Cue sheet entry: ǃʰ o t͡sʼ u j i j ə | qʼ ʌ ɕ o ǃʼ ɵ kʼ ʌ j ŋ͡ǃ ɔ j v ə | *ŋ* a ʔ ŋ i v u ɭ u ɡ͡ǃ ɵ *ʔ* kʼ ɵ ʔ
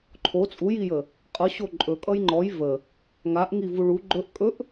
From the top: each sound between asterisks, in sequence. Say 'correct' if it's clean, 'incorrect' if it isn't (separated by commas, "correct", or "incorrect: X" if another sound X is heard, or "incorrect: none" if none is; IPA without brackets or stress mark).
correct, correct